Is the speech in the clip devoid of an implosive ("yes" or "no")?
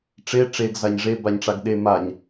no